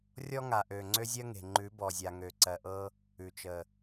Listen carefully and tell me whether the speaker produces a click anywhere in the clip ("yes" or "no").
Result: yes